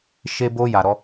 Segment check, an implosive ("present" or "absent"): absent